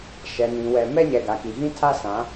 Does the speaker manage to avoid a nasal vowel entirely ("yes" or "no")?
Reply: no